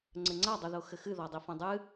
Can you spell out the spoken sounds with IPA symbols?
ŋ͡ǀɘŋ͡ǀa dˤuðoxɘxɨ ðɔdˤifɐ̃dˤɨ

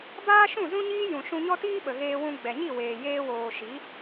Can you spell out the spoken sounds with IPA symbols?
baː˦ʃũ˦˨ zũ˦ɲiː˦jũ˨ ʃũ˧ɲɔ˦tiː˦ ɓə˨ɣeː˧wũ˧ ɡ͡bɛ˨ɲi˦˨ weː˨jeː˧woː˨ʃi˨˦

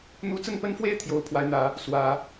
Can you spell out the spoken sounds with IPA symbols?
n̪u˧˥t͡sə˥˩npə˥nfwe˥ɪ̯ t̪ʰjo˧˥ʊ̯ pʰwa˧˥ɪ̯n̪ä˨˩˦ | swä˨˩˦

